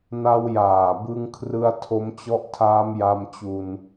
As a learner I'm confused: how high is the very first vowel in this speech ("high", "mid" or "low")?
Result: low